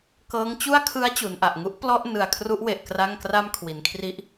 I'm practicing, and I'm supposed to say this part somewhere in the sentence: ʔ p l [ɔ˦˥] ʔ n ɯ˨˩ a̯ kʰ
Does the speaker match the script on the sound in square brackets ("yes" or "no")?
no